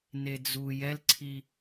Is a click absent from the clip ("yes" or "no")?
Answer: no